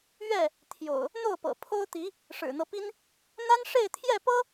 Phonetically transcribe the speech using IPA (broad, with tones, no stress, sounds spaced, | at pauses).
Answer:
ɥ ɛ˥˨ | t̪ʰ j o̰˨˩ ʊ̯ | n̪ o˥˨ ʊ̯ p ɤ̰˨˩ pʰ o˦ ʊ̯ t̪ i˨˦ | ʂ ɻ̩˨˩ n̪ ɤ˦ p i˦ n | n̪ a˦ n ʂ e˥˨ ɪ̯ t̪ʰ j ɛ˥˨ p ɤ˦